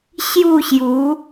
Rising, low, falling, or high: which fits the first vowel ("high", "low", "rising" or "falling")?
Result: falling